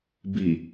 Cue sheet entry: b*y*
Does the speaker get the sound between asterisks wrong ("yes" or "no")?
yes